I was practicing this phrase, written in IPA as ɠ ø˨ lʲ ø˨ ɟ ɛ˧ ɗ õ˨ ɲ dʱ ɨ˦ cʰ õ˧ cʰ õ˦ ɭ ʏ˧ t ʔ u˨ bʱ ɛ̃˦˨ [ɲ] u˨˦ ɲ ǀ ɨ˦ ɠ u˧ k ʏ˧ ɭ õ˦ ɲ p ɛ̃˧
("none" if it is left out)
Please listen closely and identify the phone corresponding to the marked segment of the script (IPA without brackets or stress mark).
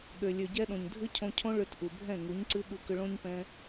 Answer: ŋ